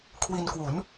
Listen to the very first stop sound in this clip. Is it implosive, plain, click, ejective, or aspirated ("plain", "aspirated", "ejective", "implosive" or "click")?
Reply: aspirated